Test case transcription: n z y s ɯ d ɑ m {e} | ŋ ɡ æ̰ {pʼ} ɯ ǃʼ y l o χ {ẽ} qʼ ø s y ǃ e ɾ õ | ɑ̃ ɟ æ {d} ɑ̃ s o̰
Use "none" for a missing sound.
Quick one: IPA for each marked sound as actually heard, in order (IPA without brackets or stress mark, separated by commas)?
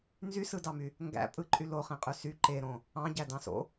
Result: y, pʼ, ẽ, d